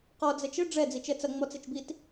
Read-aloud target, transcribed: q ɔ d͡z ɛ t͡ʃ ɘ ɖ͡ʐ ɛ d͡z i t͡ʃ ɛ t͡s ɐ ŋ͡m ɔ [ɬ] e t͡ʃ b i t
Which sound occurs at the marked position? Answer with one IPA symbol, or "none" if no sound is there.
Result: t͡s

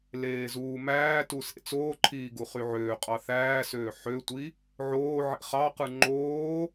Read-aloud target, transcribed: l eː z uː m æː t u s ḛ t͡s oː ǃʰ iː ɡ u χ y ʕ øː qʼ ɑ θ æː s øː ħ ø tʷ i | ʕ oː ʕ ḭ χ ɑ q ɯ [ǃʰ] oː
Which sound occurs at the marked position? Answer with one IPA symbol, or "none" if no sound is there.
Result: ŋ͡ǃ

